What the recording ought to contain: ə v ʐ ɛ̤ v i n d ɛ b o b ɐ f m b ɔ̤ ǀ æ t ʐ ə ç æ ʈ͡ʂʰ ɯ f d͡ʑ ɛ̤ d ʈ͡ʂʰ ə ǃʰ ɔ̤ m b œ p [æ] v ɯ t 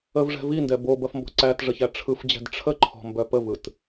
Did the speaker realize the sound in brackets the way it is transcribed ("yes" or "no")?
no